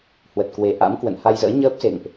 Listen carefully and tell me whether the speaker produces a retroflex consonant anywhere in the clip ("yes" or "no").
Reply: no